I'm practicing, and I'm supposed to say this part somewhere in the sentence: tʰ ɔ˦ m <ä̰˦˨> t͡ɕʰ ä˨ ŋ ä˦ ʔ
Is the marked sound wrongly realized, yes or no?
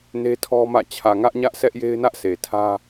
no